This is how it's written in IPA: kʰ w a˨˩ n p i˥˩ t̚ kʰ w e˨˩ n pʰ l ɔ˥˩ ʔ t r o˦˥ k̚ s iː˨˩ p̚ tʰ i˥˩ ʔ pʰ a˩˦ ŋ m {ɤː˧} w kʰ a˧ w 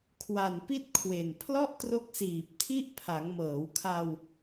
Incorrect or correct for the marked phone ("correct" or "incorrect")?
incorrect